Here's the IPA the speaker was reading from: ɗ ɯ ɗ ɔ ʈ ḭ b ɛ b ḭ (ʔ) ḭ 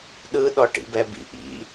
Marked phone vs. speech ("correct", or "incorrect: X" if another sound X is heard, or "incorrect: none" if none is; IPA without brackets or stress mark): correct